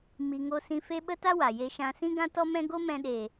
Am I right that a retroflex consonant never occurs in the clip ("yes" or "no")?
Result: yes